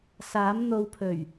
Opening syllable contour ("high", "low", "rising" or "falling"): rising